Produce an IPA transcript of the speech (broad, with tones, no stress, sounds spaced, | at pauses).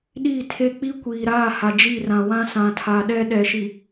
ɗ iː˦˨ tʰ e˦ k͡p i˦ kʷ iː˨ ɾ aː˦˨ h a˨ d͡ʒ i˦˨ r ã˨ w ã˦ s ã˨ tʰ a˨ ɗ ɛ˦ ɗ ɛ˨ ʃ i˨